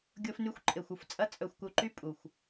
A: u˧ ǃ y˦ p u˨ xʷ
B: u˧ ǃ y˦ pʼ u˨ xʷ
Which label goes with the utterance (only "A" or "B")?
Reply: B